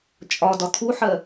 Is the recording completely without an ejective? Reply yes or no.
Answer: no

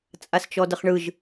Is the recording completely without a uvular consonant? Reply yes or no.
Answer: no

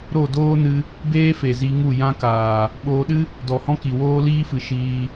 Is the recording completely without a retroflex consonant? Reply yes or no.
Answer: yes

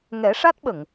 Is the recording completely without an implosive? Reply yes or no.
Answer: no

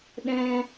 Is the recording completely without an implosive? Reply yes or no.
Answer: no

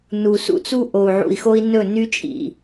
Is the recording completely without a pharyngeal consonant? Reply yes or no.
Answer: no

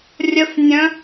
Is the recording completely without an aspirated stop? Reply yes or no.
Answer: yes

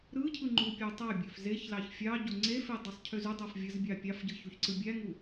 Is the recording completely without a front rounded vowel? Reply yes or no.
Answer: no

